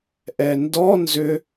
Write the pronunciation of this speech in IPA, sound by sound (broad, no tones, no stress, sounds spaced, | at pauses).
ʔ ɛ n d ɔ n z ʏ